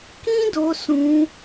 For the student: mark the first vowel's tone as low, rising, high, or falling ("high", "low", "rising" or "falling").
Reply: high